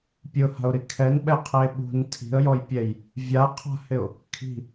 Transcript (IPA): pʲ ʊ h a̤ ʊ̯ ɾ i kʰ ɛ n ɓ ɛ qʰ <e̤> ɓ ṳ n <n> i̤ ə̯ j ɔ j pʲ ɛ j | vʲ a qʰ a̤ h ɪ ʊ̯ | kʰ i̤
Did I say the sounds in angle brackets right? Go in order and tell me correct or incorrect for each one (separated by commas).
incorrect, incorrect